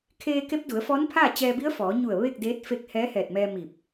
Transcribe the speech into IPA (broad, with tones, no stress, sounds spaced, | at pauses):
kʰ eː˧ k e˧˥ p̚ d u˩˧ ə̯ f ɔː˧˥ n pʰ aː˥˨ t͡ɕ ɛː˧ b i˧˥ ə̯ f ɔː˩˧ ɲ u˧˩ ə̯ ʋ e˥˨ k̚ d eː˧˥ t̚ f e˧˥ k̚ h ɛː˧˥ h ɛː˧˩ t̚ m ɛː˧ m i˧˩ p̚